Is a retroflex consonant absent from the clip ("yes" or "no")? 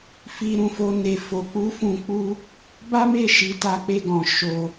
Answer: yes